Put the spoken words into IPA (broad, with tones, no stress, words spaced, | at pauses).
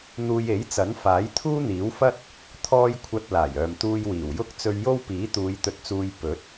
n̪uː˧je˨˥jt͡sɐ˨˥n faː˨˥jt̪ʰuː˥n̪iː˨˥wfɐ˥t̚ | t̪ʰɔː˥j kʷʰɐ˧t̚laː˨˩jœː˨mt̪uː˧j wiː˨˩wjʊ˥k̚ t͡sɵ˧ɥjo˥wpiː˨˥t̪uː˨˧j t̪ɵ˧t̚t͡suː˧j pɵ˨˥t̚